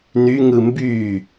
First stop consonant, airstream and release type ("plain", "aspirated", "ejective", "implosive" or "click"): plain